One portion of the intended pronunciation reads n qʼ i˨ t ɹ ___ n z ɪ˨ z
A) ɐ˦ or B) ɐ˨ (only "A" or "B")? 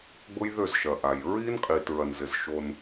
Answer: B